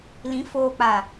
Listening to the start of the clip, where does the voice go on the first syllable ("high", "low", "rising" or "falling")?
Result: rising